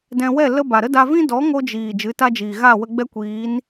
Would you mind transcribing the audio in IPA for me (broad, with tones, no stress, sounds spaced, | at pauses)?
d ɛ̃˧ w ɛ˦˨ l ə˧ b a˨ ɾ ə˦ d a˧ v ĩ˦ d ɔ˨˦ ŋ o˦ d͡ʒ iː˨ d͡ʒ ɨ˨˦ t a˦ d͡ʒ iː˨ ɣ a˦˨ w ə˧ ɡ͡b ɛ˦ kʷ iː˨˦ n